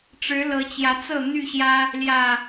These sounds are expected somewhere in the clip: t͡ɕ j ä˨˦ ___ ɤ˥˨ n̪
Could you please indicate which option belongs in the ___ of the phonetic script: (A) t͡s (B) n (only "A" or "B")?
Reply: A